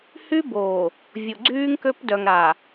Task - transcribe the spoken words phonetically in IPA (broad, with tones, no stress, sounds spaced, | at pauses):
h y˦ b oː˨ | vʲ o˨ ɡ͡ǀ yː˦ ŋ k ø˦ p d œ˨ ŋ ɾ a˨